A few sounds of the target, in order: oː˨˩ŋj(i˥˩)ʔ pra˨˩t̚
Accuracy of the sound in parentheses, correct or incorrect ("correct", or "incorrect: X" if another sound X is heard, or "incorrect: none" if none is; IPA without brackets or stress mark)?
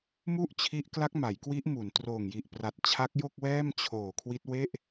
incorrect: i˨˩